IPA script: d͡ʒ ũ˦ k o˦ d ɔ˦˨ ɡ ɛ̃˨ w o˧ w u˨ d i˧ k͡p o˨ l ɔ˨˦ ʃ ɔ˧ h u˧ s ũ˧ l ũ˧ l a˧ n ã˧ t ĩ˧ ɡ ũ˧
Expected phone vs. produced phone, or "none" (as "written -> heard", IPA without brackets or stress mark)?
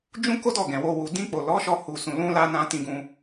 i˧ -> ĩ˧